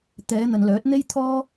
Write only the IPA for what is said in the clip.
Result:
t̪ ɛː˨˧ n̪ ɐ˨ n l œː˨˥ t̚ n̪ e˥ j t̪ʰ ɔː˥

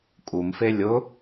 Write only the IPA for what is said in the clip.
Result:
kʼ u m f e lʲ ʊ

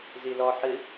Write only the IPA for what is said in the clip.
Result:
z i l ɔ ħ ɨ

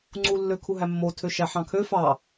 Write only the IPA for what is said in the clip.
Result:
ŋ͡ǀ u lː ø kʰ u ɦ æ mː o tʰ ø ʃ æ ħ ɑ̃ kʰ ø f ɑ

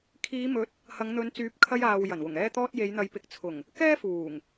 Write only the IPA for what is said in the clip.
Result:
kʰ iː˨˧ m ɵ˨˥ t̚ | h ɐ˨˧ ŋ n̪ ɵ˨˧ n t͡s yː˨˥ p̚ kʰ ɐ˧ j aː˨ w j ɐ˨˩ n w ʊ˨˩ ŋ ɛː˧ t̪ ɔː˧ t̚ j e˨˧ j n̪ ɐ˨˧ j p ɪ˨˥ k̚ t͡sʰ ʊ˨˩ ŋ | k ɛː˥ f uː˨˩ ŋ

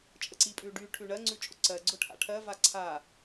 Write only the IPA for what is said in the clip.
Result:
t͡ʃʼ ə ǀ i pʼ ʉ ɖ y ʈʰ ʉ ɳ ɜ ŋ͡ǀ ʉ t͡ʃʼ ʊ ǀ ɜ ɡ͡ǀ ʊ ʈʰ a̰ ʈʰ ɜ v a ǀʰ a

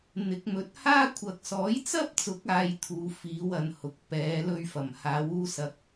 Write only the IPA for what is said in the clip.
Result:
n̪ ɪ˨˥ k̚ m ɵ˨˥ t̚ h aː˥ kʷʰ ɐ˨ k̚ s ɔː˨˥ j t͡s ɐ˥ p̚ t͡s ʊ˨˥ k̚ aː˧ j t̪ʰ uː˨˧ f iː˨˧ w ɐ˨ n h ʊ˨ k̚ p ɛː˨˧ l ɵ˧ ɥ f ɐ˨˩ m h aː˨˧ w uː˧ s ɐ˨ k̚

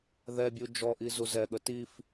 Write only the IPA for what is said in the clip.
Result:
ð ɛ bʲ u d͡ʒ ɔ ʔ i z u z ɛ ɠ ə t i f

